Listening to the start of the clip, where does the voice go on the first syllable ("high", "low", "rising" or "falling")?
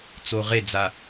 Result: low